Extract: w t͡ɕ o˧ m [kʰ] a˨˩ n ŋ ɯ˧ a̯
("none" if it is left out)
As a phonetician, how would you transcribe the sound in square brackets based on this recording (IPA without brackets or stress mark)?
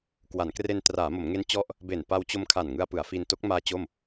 kʰ